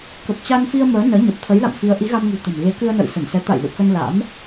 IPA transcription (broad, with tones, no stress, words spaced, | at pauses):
kə˨˩p̚t͡ɕa˧nfi˧ə̯ məː˨˦ nəː˨˦ɲə˨˩p̚ t̪ʰə˨˦jla̰˧˨mfi˨˦ə̯ ʔi˨˦ɣa˧mŋṳ˨˩ t̪ə̤˨˩m ɣe˨˦kɨ˧ə̯nə̰ː˧˨j sə˧˩nsɛ˨˦ t̪a̰˧˨j lṵ˧˨kə˧n la̰˧˥m